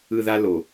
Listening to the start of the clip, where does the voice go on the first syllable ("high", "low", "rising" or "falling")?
low